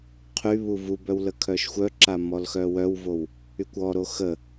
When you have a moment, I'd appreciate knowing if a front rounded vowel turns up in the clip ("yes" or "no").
yes